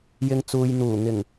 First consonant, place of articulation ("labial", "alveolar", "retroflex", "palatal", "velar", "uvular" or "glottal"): palatal